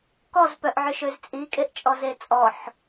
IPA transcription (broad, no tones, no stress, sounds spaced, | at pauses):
k ɔ z p œ ʔ ʕ ʏ ʃ ø z t͡sʼ i kʼ e ʔ t͡ʃʼ ɔ z e t͡sʼ ɔ ħ